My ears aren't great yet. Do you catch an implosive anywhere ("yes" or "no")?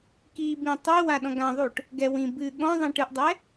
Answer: yes